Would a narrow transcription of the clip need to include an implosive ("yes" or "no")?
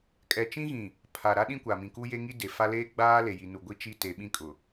yes